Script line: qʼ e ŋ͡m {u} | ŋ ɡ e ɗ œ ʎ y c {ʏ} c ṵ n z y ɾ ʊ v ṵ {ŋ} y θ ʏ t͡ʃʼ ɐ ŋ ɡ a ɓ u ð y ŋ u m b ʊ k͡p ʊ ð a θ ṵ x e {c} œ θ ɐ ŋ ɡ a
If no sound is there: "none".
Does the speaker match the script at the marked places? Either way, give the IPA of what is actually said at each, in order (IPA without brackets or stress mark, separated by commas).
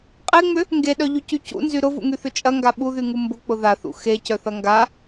ʏ, y, ŋ, c